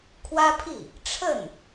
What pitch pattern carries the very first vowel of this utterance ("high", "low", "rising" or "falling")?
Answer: high